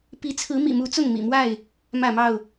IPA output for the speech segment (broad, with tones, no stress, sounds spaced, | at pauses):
p i˨˦ t͡sʰ ɹ̩˨˦ m ḭ˨˩ m u˨˦ t͡s ʊ˥˨ ŋ m ḭ˨˩ m w a˥˨ ɪ̯ | m ä˥˨ m ɑ˥˨ ʊ̯